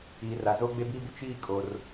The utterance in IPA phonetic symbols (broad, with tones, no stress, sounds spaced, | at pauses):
iː˨ r a˨ z oː˦ ɡ͡b e˦ b iː˦ b ʊ˦ t͡ʃ iː˦˨ kʼ o˨ r